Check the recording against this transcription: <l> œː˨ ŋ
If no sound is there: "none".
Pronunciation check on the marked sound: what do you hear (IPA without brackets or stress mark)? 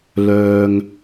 l